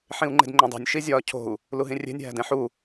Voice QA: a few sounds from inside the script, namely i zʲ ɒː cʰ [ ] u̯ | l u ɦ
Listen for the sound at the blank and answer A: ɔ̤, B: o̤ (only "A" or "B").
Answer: B